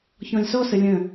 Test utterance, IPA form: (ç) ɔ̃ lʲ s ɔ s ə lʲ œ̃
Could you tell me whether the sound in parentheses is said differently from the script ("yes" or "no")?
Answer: no